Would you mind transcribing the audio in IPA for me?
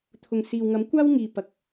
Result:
t̪ʰ ʊ˨ ŋ s iː˨ w ŋ ɐ˨˥ m kʷ aː˥ w ŋ iː˨ p ɐ˨ k̚

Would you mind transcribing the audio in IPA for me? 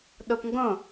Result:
ɗ o p ŋ ɡ õ

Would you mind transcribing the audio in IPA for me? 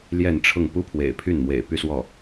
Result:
l j ɛ˥˧ n ʈ͡ʂʰ ʊ˥˩ ŋ p u˥ pʰ w ḛ˨˩ ɪ̯ pʰ y˥˩ n m w ḛ˨˩ ɪ̯ p y˥˧ s w ɔ˥˩

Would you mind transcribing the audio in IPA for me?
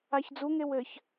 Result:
a ç d͡z u ŋ e w ɘ ç

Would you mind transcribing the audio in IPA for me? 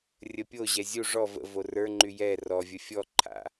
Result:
rʲ ə pʲ o ʑ ɛ zʲ u ʐ ɔ v ə̰ v o r ə˞ ŋ͡ǃ y j ɛ r ɔ vʲ ə fʲ ɔ ǃʰ a̰

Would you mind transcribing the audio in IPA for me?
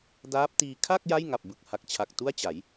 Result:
d aː˦˥ p̚ t iː˧ kʰ a˥˩ k̚ j a˥˩ j ŋ a˨˩ p̚ b ɯ˨˩ k̚ h a˨˩ k̚ t͡ɕʰ a˨˩ k̚ t u˥˩ a̯ t͡ɕ a˩˦ j

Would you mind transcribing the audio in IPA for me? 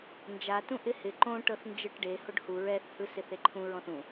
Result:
n d͡ʒ a t ũ ʔ ɪ h ɪ ǃ õ ʈ ɤ θ n d͡ʒ ɯ ʈ ɖ e h o ɖ h u ɹ ɛ θ h ɯ s ɪ θ e ǃʰ ũ ɹ ɔ̃ θ ũ

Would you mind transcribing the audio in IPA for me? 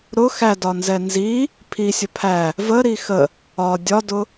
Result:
ɾ ʊ x æ d ɒ n z ɛ n z i | pʰ i sʲ ə pʰ æ | v ə ɾ i x ə | ɒ dʲ ɒ d ʊ

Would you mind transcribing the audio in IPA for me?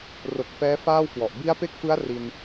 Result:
r o˨˩ k̚ f ɛː˦˥ f aː˥˩ w k w ɔ˨˩ ʔ b i˦˥ a̯ p e˦˥ k̚ f ɯ˦˥ a̯ r i˧ n

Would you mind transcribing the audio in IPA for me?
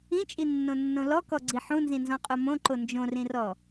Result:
ĩ t͡ʃʼ i nː õ nː õ l ɔ k ɔ ɡ͡ǀ i ħ ũ n z ĩ n z ɔ̃ qʼ o m õ ǃ o n d͡ʒ õ r ĩ r ɔ

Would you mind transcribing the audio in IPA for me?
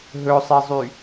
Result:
ɦ ɵ sˤ e zˤ y

